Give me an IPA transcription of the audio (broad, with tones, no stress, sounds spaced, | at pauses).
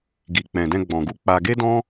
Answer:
ɡ i˨ k͡p ɛ̃˨ d ɛ̃˧ ɡ͡b ɔ̃˨ ɡ u˧ k͡p a˧ ɡ e˦ d ɔ̃˦